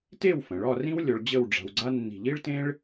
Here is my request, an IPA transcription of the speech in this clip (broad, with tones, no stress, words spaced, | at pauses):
te˥˧w fə̃˩˧ɭɒ˥˧rĩ˥wlʲɔ˧ɭ d͡ʑə˥˧wɖ͡ʐa̤˧wɡ͡ǀa˥ nːi̤˧˩ʎi˥ɭtẽ˥ɭ